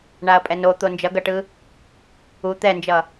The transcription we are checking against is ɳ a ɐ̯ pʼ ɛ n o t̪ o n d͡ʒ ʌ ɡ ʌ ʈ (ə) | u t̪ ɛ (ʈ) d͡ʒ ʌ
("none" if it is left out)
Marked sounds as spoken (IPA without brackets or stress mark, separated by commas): ɯ, n